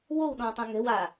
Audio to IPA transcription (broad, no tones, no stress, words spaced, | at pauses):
wowɗɔ̃tˤũ ŋɛ̤wa